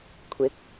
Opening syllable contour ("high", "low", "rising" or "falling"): rising